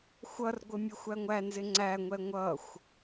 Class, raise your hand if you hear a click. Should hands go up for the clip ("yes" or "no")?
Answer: yes